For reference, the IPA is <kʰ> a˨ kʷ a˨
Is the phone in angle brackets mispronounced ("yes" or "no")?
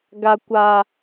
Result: yes